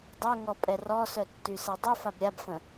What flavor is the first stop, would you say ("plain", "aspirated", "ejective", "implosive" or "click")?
plain